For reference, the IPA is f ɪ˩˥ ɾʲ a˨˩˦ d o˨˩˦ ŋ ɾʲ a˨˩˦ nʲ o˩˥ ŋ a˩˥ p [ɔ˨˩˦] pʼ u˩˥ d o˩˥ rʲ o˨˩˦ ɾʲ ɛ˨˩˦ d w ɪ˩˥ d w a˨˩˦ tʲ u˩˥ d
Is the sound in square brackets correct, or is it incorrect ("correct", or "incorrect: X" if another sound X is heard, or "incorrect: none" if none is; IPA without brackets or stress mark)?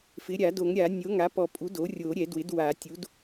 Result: correct